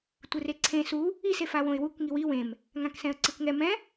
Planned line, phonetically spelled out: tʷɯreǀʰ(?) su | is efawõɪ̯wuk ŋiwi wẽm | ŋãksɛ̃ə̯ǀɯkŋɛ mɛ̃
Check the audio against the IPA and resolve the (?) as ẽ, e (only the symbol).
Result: ẽ